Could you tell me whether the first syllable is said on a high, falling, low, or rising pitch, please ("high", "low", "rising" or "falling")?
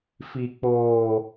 high